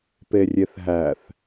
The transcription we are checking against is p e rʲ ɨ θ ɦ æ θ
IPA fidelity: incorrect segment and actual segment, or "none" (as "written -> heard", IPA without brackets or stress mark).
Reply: ɨ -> e